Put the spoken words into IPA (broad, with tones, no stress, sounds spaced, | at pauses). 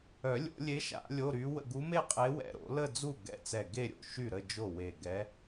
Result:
œ˨˩˦ lʲ o̰˨˩˦ lʲ e˧˥ ʃ a̰˨˩˦ lʲ o˧˥˧ ɾ y˧˥ w ə̰˥˧ ɡ u˧˥ m e˥˧ qʼ e˧˥ w ɛ̰˧˩ ɾ o̰˨˩˦ l ə˥˧ d͡z u˥˩ ɡ ɛ̰˧˩ t͡s ɛ˧˩ ɡ e˥˧ ɾʲ o̰˥˩ ʃ y˥˩ ɾ ə˥˧ d͡ʒ o˥˩ w e˧˩ ɡ ɛ˧˥